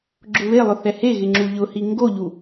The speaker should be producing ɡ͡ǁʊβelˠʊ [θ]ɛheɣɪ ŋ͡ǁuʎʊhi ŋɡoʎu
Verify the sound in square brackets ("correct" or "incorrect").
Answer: correct